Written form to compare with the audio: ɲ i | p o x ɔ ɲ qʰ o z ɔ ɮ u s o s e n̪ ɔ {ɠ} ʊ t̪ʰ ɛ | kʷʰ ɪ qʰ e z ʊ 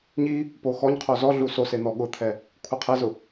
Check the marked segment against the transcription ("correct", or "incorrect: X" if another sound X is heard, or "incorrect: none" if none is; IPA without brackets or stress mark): correct